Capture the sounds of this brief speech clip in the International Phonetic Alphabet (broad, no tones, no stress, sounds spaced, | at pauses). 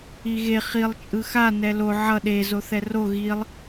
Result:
i ɣ e χ i lˠ t͡ʃʼ ɯ x a n ɛ l o ʕ ʌ ɗ e z o θ ɛ r o ɣ i lˠ